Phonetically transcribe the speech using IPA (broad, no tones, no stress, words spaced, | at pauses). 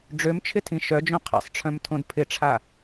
ɖ͡ʐømt͡ʃʰɪtʰĩ ʃœd͡ʒõ qʰa̰sˤʈ͡ʂʰœ̃mtʰõd pʰɪʈ͡ʂʰa